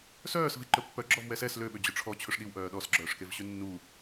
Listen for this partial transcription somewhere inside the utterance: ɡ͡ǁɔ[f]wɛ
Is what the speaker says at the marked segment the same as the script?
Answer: no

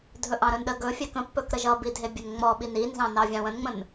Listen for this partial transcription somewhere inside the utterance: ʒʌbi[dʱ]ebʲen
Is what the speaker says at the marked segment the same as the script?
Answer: yes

